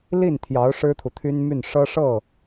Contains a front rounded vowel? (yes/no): yes